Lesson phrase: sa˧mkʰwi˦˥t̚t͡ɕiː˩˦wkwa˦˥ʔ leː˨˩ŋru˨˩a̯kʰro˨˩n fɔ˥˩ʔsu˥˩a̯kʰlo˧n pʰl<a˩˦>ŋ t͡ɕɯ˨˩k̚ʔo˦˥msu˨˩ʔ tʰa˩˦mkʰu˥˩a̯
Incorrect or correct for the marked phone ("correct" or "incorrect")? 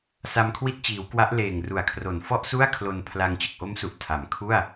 incorrect